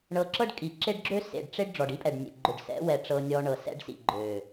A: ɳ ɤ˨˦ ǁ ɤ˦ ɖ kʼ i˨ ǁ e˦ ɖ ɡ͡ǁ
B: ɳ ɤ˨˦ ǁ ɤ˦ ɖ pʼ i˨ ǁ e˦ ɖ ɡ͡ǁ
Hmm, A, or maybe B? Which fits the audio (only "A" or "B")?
A